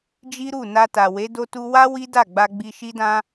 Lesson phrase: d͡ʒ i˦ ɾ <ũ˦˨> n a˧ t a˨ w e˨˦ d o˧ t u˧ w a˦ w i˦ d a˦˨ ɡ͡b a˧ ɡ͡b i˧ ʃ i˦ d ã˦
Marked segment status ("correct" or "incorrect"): incorrect